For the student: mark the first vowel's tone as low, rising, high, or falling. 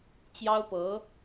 high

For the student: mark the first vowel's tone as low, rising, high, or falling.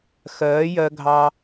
rising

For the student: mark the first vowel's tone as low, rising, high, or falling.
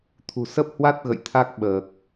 low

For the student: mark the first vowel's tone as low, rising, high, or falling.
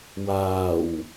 low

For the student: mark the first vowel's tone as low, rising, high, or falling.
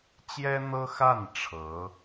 high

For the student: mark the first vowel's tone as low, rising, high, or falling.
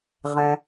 low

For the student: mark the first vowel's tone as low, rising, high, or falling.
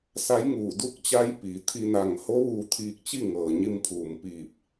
rising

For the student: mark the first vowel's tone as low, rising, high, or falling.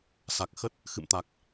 low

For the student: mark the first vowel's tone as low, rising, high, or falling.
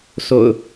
low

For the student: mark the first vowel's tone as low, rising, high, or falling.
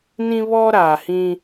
high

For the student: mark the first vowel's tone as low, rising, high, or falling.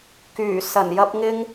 low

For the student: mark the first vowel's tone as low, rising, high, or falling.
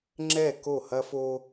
falling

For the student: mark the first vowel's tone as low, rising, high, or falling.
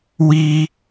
high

